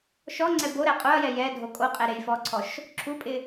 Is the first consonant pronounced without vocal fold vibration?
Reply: yes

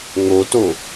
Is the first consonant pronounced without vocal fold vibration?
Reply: no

